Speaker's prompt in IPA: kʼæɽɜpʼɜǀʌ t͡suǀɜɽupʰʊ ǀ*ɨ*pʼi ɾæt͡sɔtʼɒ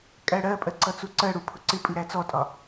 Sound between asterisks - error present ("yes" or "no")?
yes